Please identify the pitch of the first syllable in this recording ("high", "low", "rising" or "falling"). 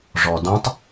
low